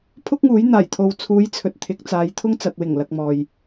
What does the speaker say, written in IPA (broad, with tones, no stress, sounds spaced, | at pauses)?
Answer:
pʰ ʊ˥ k̚ ŋ uː˨˥ j n̪ aː˨˩ j t̪ʰ o˨ w t͡sʰ uː˨˧ j t͡sʰ ɵ˨ t̚ t̪ʰ ɪ˨˥ k̚ t͡s aː˨˧ j t̪ʰ ʊ˥ ŋ t͡s ɐ˨ t̚ w ɪ˨˩ ŋ l ɐ˨ k̚ m ɔː˨ j